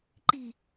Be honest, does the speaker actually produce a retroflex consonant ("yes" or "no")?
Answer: no